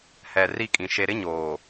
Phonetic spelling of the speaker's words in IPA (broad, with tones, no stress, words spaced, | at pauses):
hɛ˨ ri˦˨kʼĩ˨ ʃe˦ ɾɪ˦ɲoː˨